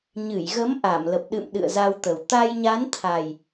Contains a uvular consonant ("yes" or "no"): no